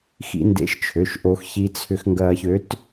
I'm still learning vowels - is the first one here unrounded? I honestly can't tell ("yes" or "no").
yes